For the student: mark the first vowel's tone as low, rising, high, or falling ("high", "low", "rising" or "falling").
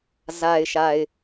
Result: low